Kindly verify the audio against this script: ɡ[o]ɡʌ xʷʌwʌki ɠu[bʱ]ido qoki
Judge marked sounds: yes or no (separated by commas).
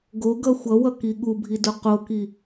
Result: yes, yes